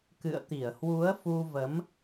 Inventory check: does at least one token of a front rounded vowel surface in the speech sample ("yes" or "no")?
no